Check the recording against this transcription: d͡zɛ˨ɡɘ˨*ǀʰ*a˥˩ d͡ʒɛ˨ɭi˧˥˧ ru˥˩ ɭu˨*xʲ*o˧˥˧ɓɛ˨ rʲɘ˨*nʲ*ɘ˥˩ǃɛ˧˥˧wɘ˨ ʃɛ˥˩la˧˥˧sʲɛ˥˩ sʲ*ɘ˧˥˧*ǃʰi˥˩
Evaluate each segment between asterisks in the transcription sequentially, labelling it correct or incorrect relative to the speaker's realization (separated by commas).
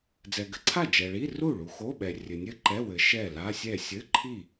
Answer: correct, incorrect, correct, correct